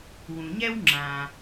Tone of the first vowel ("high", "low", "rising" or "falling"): low